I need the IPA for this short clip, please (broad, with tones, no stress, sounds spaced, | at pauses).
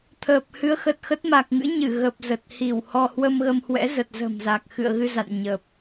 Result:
t̪ʰ əː˨˩ p̚ h ɨ˨˦ ə̯ x ə˨˩ t̚ x ə˦˥ t̚ m a˨˩ k̚ ŋ ɨ̰˧˥ ɲ ɨ˧˩ ɣ ə˨˩ p̚ z ə˨˩ t̚ h i˧˩ w h ɔ˧ h w ə˧ m ɣ ə˧ m h w ɛ̰˧˥ z ə˨˩ t̚ z ə̤˨˩ m z a˨˩ k̚ x ɨ̰˧˨ ə̯ ɣ ɨ˧ z a̰˧˨ n ɲ ə˨˩ p̚